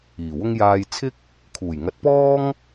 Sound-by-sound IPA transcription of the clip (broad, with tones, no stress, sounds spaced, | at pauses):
iː˨˩ w ʊ˥ ŋ j aː˧ j t͡sʰ ɪ˥ k̚ | kʰ uː˨˩ j ŋ ɐ˨˥ t̚ p ɔː˥ ŋ